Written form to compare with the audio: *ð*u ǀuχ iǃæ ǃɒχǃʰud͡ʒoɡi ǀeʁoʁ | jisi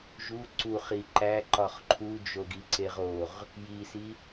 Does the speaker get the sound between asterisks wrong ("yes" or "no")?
yes